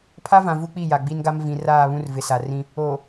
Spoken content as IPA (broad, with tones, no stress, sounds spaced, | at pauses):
pʰ a˦ v ã˨ v u˦ k͡p i˦˨ j a˨ ɡ͡b i˦ n ɡ a˦ m v ĩ˨ r aː˦˨ β ũ˦ r v ɪ˨ s a˨ r ĩ˦ | oː˨